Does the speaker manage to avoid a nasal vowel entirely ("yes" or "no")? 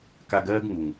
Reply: yes